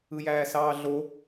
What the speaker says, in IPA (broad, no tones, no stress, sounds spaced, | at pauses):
ɯ j æː s ɑː ɮ o